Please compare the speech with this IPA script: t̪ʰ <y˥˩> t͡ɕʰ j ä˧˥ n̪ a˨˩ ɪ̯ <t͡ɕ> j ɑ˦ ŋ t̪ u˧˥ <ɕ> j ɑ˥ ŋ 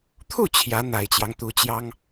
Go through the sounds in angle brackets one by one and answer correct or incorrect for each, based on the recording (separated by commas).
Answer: incorrect, correct, incorrect